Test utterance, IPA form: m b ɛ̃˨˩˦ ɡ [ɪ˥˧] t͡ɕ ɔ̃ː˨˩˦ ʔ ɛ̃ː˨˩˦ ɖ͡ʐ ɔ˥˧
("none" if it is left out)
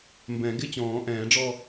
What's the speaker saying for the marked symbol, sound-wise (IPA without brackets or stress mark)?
ɪ˥˧